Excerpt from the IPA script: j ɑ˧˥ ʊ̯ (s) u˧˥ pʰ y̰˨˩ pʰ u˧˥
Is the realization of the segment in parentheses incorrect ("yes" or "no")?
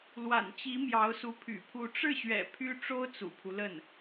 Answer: no